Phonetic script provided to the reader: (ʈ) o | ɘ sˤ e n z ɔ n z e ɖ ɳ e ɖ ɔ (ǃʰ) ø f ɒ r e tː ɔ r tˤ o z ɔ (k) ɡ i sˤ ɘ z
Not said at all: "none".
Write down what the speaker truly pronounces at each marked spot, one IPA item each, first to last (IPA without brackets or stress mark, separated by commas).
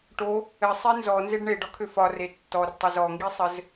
ʈ, kʰ, ŋ